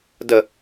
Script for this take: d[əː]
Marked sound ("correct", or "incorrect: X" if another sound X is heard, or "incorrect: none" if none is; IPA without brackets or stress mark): incorrect: ə